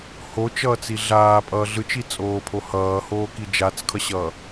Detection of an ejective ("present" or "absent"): present